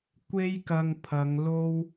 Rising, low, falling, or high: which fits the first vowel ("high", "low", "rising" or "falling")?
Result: high